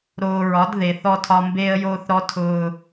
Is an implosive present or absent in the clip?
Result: absent